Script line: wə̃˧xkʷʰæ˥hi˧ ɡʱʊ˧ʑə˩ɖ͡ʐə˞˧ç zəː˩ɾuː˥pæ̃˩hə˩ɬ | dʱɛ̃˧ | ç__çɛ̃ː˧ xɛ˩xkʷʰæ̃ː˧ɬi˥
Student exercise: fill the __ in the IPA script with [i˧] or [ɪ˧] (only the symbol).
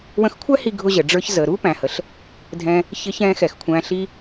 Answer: ɪ˧